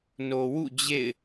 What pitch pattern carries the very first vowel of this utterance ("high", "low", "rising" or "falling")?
low